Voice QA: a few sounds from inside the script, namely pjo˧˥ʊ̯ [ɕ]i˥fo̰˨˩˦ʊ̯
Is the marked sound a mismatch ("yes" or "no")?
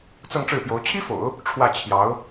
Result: yes